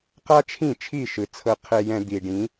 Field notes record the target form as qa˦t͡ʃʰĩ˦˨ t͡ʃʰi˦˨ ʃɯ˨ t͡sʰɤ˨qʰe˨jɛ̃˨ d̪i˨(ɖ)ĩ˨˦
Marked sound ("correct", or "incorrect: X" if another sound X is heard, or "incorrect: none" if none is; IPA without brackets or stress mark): correct